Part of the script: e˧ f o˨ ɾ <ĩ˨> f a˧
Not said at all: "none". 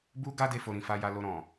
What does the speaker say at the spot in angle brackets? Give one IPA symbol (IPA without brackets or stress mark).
ĩ˨